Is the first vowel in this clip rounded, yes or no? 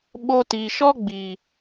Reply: yes